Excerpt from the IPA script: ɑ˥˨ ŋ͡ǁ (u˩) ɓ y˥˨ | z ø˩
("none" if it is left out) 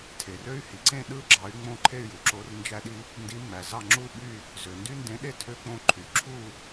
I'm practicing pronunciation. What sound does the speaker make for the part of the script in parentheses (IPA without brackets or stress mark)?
u˥˨